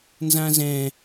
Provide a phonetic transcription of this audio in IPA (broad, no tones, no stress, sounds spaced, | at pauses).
n z ã z ɛ̃